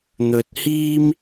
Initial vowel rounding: rounded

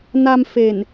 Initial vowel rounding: unrounded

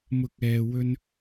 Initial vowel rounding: rounded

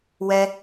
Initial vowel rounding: unrounded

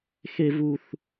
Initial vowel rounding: unrounded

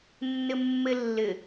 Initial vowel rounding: unrounded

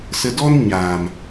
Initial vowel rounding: unrounded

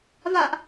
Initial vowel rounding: unrounded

